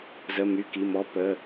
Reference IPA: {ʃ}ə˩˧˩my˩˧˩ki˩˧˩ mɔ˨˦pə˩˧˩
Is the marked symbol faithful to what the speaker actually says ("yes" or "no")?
no